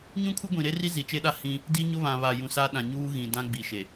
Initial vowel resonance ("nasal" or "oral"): nasal